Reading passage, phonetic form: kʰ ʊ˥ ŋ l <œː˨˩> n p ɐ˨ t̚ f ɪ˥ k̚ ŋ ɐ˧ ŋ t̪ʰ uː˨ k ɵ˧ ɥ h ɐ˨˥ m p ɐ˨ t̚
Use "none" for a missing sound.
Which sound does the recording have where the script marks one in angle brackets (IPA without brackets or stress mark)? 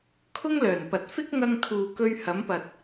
œː˨˩